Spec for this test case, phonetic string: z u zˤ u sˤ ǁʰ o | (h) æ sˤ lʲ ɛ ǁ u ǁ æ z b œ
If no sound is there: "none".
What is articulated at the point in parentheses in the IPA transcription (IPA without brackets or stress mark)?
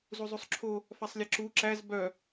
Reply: f